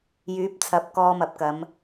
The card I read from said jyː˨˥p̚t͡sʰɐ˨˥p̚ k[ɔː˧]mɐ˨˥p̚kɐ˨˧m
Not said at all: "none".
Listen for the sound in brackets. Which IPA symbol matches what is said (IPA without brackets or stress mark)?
ɔː˧